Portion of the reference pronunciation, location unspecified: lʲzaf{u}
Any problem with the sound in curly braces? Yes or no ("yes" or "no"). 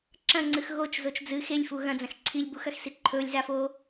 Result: yes